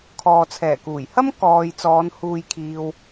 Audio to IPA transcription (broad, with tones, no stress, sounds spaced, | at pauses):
kʰ ɔː˨ t͡sʰ ɛː˨˩ k uː˨˩ j h ɐ˥ m k ɔː˨ j t͡s ɔː˨˧ n h uː˨ j kʰ iː˨ w